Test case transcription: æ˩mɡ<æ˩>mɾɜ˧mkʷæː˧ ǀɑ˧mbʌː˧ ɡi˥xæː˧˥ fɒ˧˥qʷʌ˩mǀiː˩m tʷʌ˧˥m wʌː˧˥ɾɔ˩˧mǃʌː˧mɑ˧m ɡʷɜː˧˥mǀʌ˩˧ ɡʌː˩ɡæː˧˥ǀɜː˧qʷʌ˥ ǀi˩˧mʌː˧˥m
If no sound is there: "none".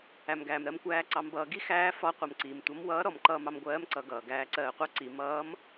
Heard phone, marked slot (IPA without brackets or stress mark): æː˩